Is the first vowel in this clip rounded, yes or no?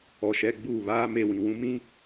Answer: yes